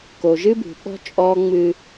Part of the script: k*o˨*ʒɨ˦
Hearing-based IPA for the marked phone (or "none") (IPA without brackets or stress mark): o˨